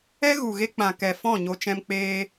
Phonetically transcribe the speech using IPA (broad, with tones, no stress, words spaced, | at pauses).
ɛ˦ɣu˨ɣe˧ k͡pã˨kɛ˨ fɔ̃˦˨ɲo˧ t͡ʃɛ̃˧mk͡peː˧